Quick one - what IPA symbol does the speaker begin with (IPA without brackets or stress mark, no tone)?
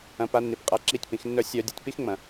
ɐ̃